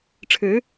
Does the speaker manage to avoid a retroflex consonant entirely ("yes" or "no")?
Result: no